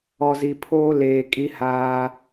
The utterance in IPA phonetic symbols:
ɔ˨ z i˨ pʰ oː˦ l eː˨ kʼ i˦ h aː˦

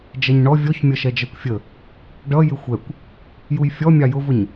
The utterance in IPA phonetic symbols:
d͡ʒ ɛ ɲ ɳ ɔ vʲ ɔ ç mʲ ʌ ʃ ɛ d͡ʒ ɜ kʷ fʲ ə | ɖ ʌ j ɪ xʷ ɛ kʷ | j u j fʲ ɔ mʲ ɑ j ʊ v ʊ ɲ

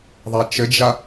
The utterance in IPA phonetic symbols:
ðˤ a t͡ʃ ɘ d͡ʒ a

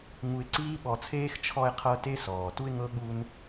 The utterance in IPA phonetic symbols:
ŋ u˧ ɪ̯ ǀ iː˦ ɓ ɔ˧ t͡sʰ eː˦ x t͡ʃʰ ɔ˧ ɪ̯ qʰ ɤ˧ t e˦ s ɔː˨ t u˦ ɪ̯ ŋ ɤ˦ ɠ u˧ n

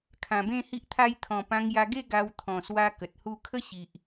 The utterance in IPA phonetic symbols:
kʰ ã˨˩ b ẽ˥˧ h i˦ ʔ t̪ʰ a˦ j t̪ʰ ɔ̃˨˩ p ã˧ ŋ j a˧ ɡ e˥˧ ɡ a˧ w t̪ʰ ɔ̃˨˩ s w a˧ k ə˨ t̚ h u˥˧ kʰ ə˦ ɕ i˨ ʔ

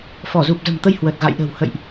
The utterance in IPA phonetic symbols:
f ɔ˧˩ z u˨˩ p̚ z ə̤˨˩ m t̪ ə˧ j h w ə˨˩ t̚ ɣ a̰˧˨ j ɗ ə̤˨˩ w h ə̰˧˨ j ʔ

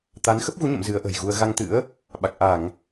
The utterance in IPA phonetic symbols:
t̪ a˨˦ n x ə˦˥ p̚ ɣ u˨˦ ɲ ə̰˧˨ m z ɨ˨˦ ə̯ ʔ ə̤˨˩ j ɣ u˧ ə̯ ɣ a˧ ŋ t̪ ɨ̰˧˥ ə̯ | ɓ a˨˩ k̚ ʔ a˧˩˨ ŋ

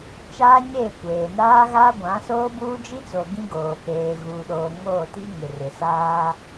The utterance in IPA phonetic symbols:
t͡ʃ aː˦ ɲ eː˦˨ kʷ eː˨ n aː˦ ɣ a˦ ɡʷ ã˨˦ s oː˦ b uː˦ d͡ʒ i˦ t͡s o˨ ɡ ĩ˦ ɡ oː˨ p eː˨ ɣ uː˨ ɗ oː˨ ŋ oː˦˨ t i˦ ŋ ɪ˨ r ɪ˨ s aː˦

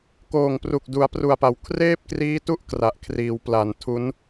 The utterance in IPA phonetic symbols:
k oː˨˩ ŋ p r u˨˩ k̚ d u˩˦ a̯ p r u˨˩ a̯ p a˩˦ w kʰ r eː˥˩ p̚ k r iː˦˥ t u˥˩ ʔ k r a˨˩ ʔ kʰ r iː˩˦ w p l a˨˩ n tʰ u˦˥ n

